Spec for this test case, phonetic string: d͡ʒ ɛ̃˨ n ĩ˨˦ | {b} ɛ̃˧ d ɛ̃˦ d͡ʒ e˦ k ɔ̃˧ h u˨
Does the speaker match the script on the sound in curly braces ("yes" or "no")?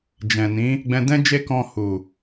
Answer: no